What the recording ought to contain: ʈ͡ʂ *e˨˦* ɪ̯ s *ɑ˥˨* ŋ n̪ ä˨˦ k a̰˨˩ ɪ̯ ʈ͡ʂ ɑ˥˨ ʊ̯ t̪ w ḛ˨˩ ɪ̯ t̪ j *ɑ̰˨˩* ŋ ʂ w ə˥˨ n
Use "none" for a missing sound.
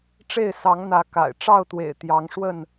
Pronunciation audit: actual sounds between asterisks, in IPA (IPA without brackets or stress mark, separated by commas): e˥˨, ɑ˨˦, ɑ˨˦